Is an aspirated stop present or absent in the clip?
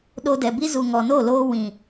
absent